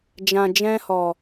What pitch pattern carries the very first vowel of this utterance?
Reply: low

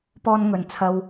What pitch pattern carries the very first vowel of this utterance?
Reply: high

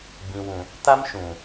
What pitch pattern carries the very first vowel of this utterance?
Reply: low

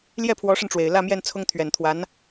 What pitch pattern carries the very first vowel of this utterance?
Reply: falling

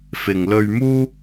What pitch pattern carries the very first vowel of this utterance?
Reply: low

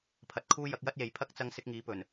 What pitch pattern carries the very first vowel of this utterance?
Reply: low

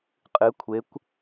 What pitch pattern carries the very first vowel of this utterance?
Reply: rising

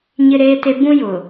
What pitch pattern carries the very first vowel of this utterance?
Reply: high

